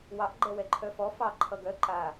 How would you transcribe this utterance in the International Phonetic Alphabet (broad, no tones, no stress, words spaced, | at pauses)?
wɑʔ ɡ͡ǃɛwɛǃʰœfɔ fɑ ǃʰʌɡœ ǃa